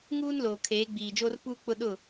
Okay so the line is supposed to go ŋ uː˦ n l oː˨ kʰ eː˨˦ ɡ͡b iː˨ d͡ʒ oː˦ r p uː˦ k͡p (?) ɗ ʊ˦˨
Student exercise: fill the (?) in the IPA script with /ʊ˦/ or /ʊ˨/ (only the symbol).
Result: ʊ˦